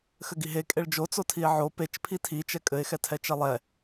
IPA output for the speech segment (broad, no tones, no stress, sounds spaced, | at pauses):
x ɘ ɡ i ɦ e kʼ e ɭ d͡ʒ o t͡s o tʰ i e̯ ʕ o p e t͡ʃ pʰ i tʰ i t͡ʃ ɛ kʼ ɘ e̯ x ɛ tʰ ɛ t͡ʃ ɛ lˠ ɛ